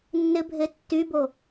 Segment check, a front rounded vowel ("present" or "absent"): present